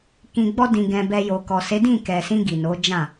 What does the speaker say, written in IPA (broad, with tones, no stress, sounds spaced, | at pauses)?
k ĩ˨ ɡ͡b ɔ˧ d ĩ˨ ɡ ɛ̃˧ b ɛ˧ j o˨ k ɔ˨ s e˨˦ d ĩ˦˨ k ɛ˨ s ĩ˧ ɡ i˨ n o˨˦ d͡ʒ ã˦˨